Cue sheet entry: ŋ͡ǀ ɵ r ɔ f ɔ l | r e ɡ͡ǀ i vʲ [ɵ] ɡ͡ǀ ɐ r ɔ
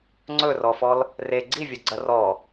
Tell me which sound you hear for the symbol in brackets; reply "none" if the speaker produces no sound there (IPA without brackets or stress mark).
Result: o